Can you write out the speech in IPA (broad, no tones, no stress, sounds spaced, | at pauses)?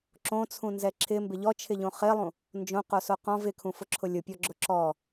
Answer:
ǁ õ t͡sʰ ũ n z ɛ ǁʰ ɪ m b ɪ ʎ ɔ t͡ʃʰ ɪ ʎ õ χ ɪ lˠ ũ | n d͡ʒ õ q o s o q ɔ̃ v ɪ kʰ ũ f ʊ ǁʰ ʊ lʲ ʊ pʲ ɔ ɡ͡ǁ ʊ ǁ ɔ